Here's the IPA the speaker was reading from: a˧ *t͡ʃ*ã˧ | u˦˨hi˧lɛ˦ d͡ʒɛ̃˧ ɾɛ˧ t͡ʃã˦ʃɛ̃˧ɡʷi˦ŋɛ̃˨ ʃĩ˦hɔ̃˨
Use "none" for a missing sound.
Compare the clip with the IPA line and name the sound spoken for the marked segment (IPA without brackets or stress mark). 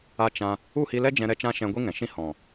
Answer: t͡ʃ